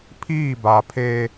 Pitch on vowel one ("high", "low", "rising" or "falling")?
falling